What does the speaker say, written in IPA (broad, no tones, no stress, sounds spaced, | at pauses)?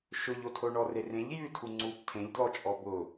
ʃ ʊ ʎ o tʰ o ɳ ɔ r e r ẽ ʎ j ʉ tʰ u ŋ͡ǀ u p tʰ ẽ ʎ d l ɔ t͡ʃʼ ɔ b ʊ